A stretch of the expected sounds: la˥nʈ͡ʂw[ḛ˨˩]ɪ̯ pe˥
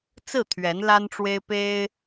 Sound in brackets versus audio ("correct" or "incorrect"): incorrect